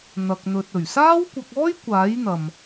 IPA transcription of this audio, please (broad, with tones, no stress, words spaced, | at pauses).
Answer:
n̪ɐ˨k̚n̪ɵ˨t̚ ɵ˨˩ɥsaː˥wkʷɐ˧k̚ɔː˥j kʷaː˨˥jn̪ɐ˨m